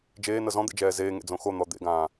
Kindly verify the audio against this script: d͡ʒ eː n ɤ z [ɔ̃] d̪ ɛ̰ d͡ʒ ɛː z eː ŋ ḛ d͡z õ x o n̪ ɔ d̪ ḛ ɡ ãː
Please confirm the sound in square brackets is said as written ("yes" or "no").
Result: yes